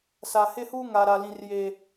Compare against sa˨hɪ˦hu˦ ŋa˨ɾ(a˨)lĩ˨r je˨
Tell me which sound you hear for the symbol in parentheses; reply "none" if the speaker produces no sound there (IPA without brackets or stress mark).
a˨